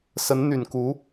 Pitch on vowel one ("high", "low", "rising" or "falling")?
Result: rising